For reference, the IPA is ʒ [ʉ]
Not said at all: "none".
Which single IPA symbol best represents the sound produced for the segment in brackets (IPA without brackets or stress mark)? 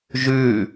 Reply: ʉ